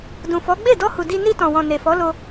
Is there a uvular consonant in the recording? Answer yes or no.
no